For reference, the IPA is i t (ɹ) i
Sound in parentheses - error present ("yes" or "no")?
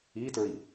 no